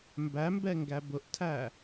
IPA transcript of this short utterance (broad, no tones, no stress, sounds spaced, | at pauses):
m b æ m b ɛ ŋ ɡ æ b ʊ ʔ tʰ æ